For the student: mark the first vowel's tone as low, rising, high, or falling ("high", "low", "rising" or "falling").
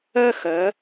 high